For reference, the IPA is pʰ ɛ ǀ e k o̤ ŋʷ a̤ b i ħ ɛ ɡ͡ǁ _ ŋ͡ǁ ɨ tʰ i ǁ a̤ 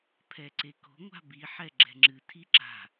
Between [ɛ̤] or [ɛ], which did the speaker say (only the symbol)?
ɛ̤